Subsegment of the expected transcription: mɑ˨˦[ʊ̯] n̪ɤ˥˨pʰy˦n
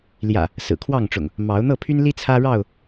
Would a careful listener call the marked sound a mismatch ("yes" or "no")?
no